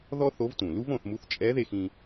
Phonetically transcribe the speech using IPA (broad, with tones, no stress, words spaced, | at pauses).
ðɔ˥θo˧˥vtũ˩lu˥v õ˩˧θmu˧˥θ t͡ʃʼɛ˧˥ðe˧xĩ˧